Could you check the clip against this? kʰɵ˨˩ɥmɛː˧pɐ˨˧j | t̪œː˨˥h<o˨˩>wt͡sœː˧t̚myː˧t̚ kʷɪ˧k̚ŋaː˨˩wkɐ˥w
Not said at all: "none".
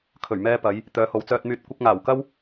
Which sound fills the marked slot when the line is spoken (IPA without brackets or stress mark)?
o˨˧